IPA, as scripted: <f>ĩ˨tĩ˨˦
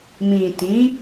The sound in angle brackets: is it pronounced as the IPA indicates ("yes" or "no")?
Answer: no